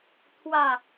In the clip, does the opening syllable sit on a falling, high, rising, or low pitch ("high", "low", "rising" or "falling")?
low